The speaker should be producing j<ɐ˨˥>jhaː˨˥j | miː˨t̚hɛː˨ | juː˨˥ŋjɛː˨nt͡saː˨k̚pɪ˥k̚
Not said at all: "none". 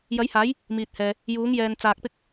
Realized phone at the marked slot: ɐ˨˥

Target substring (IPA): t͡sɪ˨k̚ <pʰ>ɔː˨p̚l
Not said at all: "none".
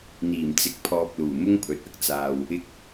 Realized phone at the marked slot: pʰ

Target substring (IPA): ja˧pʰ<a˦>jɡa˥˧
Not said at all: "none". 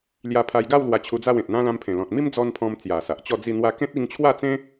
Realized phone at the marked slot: a˧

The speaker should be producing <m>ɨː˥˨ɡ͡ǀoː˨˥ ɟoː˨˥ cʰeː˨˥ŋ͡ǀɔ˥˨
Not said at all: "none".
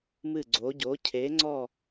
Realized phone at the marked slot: m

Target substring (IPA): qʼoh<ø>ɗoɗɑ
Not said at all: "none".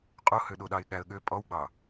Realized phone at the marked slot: ø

